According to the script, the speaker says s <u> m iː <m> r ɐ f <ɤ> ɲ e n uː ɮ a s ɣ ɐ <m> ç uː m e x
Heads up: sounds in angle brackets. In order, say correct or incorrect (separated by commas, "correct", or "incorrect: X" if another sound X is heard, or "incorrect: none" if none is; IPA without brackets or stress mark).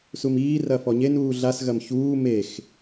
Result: correct, incorrect: none, incorrect: ɔ, correct